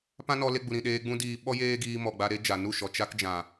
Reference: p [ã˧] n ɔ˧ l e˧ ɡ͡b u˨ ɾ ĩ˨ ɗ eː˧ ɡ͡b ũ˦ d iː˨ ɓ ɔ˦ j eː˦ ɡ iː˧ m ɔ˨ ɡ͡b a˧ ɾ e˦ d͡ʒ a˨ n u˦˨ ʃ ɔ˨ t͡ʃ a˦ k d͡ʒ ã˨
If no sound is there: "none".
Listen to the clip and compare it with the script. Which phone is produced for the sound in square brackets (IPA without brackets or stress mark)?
ã˦